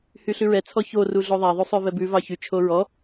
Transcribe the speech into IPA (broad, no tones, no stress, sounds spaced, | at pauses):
h y ɬ ʉ ɹ ɛ t͡sʰ ɔ ç o r u ɮ o ðˤ æ ðˤ u sˤ ø v ɛ b ʉ v ɑ ç y t͡ʃʰ o ɹ ɔ